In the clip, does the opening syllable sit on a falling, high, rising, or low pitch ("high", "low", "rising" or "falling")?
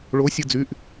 rising